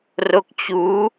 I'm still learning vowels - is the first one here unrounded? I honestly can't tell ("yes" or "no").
no